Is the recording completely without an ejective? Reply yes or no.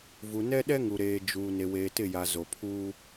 yes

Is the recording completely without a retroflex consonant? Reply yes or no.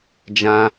yes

